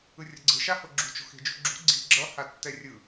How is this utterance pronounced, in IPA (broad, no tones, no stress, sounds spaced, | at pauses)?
ɯ rʲ ʌ ɡ͡ǀ ɯ ʃ a h o ɡ͡ǁ ṳ t͡ʃ o̤ x e̤ d͡ʒ ṳ ɡ͡ǁ ṳ ɡ͡ǀ i̤ ɡ͡ǁ ʌ h a tː ɛ rʲ ɯ